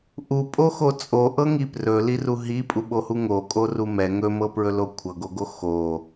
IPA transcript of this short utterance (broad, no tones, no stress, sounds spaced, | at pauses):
ʔ u pʼ o x o t͡sʼ o ʔ ɤ ŋ i p r ɵ l i r u ɦ i pʼ u ɓ o h u ŋ o kʼ o r u m ɛ ŋ ɵ m ɤ p ɹ ɵ l o kʷʰ ɤ ɡ o ɡ o x o